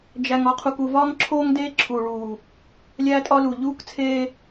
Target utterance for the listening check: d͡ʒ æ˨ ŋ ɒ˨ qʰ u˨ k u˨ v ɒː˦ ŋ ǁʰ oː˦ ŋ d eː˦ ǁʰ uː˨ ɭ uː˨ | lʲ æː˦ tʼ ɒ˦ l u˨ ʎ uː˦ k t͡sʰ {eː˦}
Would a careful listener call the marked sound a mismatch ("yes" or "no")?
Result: no